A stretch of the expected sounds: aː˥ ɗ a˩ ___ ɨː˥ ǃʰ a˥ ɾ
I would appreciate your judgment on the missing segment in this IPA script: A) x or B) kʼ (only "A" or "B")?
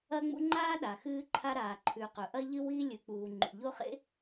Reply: A